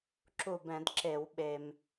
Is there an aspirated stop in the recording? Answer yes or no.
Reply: no